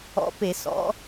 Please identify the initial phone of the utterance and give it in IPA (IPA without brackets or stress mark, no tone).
ɔ̰